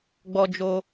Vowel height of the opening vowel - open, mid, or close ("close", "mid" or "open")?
mid